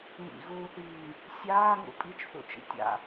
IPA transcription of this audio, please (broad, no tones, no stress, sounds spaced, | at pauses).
ŋ ḭ ɣ uː θ iː ŋ | sʲ aː ŋ ṵ pʼ i t͡ʃ θ ṵ t͡ʃ ḭ tʲ a̰